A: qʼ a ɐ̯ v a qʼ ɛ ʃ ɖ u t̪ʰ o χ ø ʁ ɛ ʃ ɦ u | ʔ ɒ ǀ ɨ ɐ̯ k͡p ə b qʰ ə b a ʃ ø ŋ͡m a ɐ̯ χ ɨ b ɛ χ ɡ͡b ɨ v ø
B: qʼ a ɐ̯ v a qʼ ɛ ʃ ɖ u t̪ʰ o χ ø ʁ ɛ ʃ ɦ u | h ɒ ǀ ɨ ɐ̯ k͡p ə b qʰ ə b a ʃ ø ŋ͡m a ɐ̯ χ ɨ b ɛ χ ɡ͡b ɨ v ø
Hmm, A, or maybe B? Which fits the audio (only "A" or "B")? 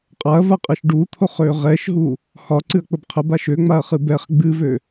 B